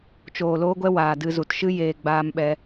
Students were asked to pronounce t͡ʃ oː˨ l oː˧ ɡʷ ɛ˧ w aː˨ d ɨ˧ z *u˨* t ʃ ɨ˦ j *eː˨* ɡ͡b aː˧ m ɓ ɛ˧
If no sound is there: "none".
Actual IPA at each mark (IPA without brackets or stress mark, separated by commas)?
u˨, eː˨